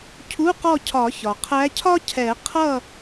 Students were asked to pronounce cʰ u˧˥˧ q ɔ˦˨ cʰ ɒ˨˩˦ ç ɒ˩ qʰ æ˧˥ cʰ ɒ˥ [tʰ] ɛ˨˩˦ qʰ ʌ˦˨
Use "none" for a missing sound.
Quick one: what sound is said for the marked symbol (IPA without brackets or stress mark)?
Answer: cʰ